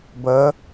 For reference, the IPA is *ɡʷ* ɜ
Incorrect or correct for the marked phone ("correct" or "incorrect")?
incorrect